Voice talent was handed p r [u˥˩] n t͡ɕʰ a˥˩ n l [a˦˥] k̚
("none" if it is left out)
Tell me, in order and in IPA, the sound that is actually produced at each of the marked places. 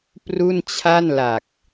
u˥˩, a˨˩

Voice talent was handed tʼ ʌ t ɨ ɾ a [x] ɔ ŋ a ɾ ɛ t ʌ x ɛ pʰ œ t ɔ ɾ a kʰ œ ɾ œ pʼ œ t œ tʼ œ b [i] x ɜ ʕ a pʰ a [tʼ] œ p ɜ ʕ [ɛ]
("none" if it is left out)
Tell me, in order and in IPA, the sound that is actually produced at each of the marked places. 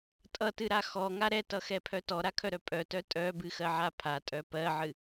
x, ɨ, tʼ, ɨ

